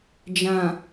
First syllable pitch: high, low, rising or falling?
low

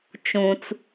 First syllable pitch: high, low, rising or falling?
low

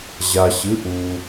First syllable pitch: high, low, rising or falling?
low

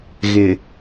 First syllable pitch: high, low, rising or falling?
low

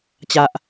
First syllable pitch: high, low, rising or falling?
low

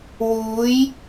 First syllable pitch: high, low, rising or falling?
rising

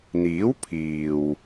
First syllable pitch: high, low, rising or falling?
rising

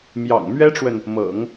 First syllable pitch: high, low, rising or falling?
low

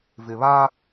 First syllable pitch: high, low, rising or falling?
low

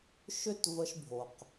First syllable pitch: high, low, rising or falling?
high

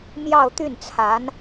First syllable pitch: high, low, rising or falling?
falling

